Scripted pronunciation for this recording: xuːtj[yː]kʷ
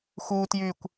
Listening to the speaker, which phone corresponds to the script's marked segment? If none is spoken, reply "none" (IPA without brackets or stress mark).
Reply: yː